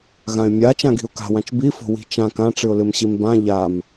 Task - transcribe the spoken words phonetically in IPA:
ɣ ã ɪ̯ mʲ a t͡ʃ ã ɡ i̤ ʊ̯ k a̤ w ã t͡ʃ b i f o̤ w i̤ t͡ʃ ã k ã ʈ͡ʂ ɨ ʊ̯ l ɨ m ɕ i m b ã ʎ a m

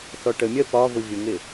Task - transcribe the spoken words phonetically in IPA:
θ ɔ ʈ ə mʲ ɜ p ɒ v ʊ vʲ ʊ ŋ ɪ

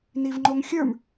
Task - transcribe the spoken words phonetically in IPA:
n i v ŋ͡ǃ o ŋ xʲ ə˞ m

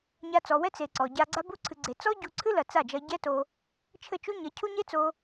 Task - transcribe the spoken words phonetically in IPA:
ɲ a˧ t͡s ɔ˨ w ɛ˦ t͡s e˨ ǀ ɔ˨ ɟ a˧ ɡ͡ǀ a˧ b u˧ ǀʰ ɨ˨ ɡ͡ǀ e˨ t͡s ɔ˦ ɟ u˧ ǀʰ ɨ˦ l ɐ˨ t͡s a˦˨ d͡ʒ ɐ˧ ɟ ɛ˦ t o˧ | t͡ʃʰ ɘ˦˨ t͡ʃ u˦ ɲ ɐ˨˦ cʰ u˦ ɲ e˦ t͡s o˧

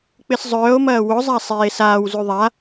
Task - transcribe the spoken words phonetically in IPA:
k͡p ɪ s zˤ œː o̯ m ɐː w ʊ zˤ a sˤ eː s aː w z y ðˤ a

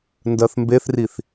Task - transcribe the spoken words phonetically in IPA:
n d ɜ θ m b e θ r i θ

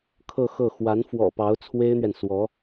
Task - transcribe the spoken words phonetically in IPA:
kʰ ɤ˥˧ x ɤ˥˩ x w a˧˥ n f w ɔ̰˨˩ p ɑ˧˥ ʊ̯ t͡sʰ w e˥ ɪ̯ n̪ ɥ ɛ˨ n s w ɔ˧˥

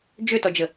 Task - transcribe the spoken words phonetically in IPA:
d͡ʒ ø t ɔ d͡ʒ ə

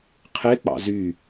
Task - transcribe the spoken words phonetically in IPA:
qʰ e k͡p ɑ̰ z y

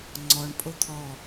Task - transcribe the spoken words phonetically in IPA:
ŋ͡ǀ ɔ ɳ pʼ o t̪ʰ ɔ

